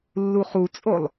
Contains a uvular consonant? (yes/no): yes